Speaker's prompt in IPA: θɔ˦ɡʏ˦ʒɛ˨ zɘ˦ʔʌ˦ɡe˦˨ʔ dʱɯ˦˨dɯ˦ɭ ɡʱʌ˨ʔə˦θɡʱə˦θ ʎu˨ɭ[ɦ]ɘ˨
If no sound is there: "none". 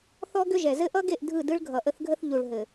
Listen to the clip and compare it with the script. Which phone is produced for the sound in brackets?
ɦ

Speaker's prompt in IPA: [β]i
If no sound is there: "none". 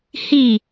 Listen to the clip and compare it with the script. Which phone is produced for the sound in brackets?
h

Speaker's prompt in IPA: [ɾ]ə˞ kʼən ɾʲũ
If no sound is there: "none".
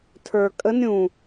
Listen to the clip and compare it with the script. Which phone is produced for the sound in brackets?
tʰ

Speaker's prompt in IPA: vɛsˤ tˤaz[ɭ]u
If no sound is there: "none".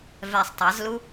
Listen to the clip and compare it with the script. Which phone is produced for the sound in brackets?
l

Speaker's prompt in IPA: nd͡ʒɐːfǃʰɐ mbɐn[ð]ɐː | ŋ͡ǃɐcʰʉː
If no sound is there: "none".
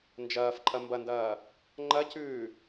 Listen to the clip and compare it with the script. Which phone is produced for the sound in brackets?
d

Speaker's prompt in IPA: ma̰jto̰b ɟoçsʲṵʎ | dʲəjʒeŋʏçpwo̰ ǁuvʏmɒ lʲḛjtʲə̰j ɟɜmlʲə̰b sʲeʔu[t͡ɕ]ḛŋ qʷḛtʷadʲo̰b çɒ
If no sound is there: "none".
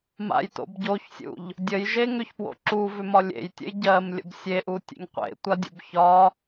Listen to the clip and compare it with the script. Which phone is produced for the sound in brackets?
tʲ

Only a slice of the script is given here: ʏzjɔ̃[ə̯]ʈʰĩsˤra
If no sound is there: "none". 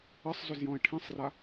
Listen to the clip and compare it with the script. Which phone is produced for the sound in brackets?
ɪ̯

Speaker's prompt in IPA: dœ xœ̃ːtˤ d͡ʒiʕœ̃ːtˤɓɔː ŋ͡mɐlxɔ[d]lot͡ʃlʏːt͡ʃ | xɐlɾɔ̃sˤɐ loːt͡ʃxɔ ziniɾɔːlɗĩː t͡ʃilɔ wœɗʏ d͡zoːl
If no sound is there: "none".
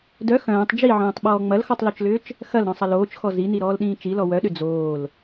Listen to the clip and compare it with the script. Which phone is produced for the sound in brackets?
tˤ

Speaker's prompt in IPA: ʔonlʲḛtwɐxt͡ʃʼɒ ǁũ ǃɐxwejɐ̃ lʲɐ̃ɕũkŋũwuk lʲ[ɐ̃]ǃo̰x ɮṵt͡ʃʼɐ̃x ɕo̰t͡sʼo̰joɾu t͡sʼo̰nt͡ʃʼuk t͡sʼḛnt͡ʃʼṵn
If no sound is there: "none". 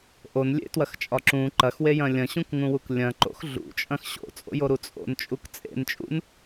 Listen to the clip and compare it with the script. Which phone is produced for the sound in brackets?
ɐ̃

